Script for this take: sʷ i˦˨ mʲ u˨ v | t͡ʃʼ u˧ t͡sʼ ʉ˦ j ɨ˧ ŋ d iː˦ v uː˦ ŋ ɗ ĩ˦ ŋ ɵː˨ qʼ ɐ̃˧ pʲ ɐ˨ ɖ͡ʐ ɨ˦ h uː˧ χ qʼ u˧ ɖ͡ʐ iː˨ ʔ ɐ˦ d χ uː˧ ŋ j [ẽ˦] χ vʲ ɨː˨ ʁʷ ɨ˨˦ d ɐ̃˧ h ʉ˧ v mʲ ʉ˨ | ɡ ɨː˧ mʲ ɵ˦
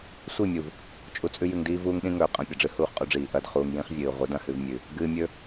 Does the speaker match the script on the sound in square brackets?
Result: no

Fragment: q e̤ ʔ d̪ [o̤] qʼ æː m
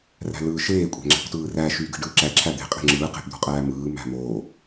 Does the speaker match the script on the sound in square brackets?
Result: yes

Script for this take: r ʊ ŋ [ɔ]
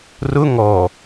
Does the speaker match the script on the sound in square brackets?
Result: yes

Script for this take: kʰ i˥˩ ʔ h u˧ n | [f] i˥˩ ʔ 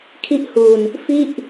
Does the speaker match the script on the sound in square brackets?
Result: yes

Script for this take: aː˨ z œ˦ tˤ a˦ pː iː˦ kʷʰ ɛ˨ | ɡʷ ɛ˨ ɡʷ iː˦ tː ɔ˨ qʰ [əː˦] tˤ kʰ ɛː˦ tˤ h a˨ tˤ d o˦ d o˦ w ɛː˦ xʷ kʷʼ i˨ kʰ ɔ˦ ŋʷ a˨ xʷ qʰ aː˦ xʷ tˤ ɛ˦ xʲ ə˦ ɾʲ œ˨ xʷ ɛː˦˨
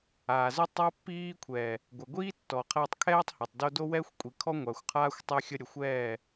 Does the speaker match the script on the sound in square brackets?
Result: no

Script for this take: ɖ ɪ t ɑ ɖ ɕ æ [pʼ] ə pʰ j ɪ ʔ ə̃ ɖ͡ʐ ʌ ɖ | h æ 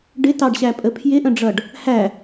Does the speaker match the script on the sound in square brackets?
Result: yes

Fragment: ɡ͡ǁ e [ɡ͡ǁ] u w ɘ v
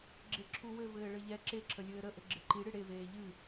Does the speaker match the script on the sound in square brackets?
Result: no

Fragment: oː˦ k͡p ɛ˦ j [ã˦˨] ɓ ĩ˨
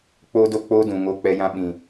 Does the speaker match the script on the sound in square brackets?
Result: no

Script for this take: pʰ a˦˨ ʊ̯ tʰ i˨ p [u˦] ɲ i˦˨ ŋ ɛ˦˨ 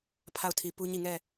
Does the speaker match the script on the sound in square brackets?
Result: yes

